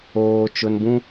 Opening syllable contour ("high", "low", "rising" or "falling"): low